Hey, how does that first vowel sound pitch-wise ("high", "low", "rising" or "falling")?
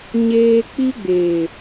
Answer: high